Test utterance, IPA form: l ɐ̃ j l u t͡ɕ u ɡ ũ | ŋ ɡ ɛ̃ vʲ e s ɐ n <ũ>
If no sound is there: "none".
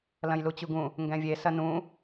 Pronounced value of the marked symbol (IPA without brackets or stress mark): ũ